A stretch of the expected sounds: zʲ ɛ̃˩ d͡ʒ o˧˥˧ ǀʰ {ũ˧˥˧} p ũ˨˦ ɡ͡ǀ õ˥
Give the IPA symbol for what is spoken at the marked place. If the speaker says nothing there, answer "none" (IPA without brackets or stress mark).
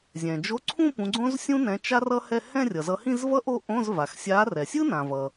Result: ũ˥˧